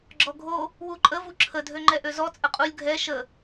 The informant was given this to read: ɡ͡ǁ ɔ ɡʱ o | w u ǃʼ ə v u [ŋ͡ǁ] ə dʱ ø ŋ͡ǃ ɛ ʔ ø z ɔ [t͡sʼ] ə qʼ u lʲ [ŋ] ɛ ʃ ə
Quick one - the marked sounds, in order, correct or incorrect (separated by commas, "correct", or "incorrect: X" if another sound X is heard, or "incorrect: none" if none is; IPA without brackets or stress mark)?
incorrect: ǁʰ, correct, incorrect: ɡʱ